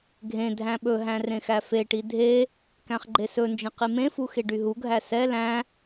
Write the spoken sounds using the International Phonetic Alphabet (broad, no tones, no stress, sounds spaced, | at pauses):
ɡʱ ẽ dʱ æ̃ ɓ ɵ ɦ æ̃ r ẽ x æ f e ʈ i dʱ e | k æ̃ χ ɡ͡ǃ e s ɵ n d͡ʒ ẽ q i m ẽ f u x e ɖ y ɦ u ɡʱ æ s ɛ l æ̃